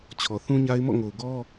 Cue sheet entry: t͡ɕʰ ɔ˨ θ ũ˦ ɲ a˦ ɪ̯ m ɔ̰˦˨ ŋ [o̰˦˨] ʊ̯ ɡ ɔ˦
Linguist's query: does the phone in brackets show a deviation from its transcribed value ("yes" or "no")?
yes